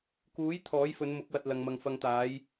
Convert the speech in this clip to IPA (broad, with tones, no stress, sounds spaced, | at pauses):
k uː˨˥ j t̪ʰ ɔː˨˥ j f ɵ˨˧ n m ʊ˨˥ k̚ w ɐ˨ t̚ l ɐ˨ ŋ m ɐ˨ ŋ f ɐ˨ ŋ t̪ aː˨˧ j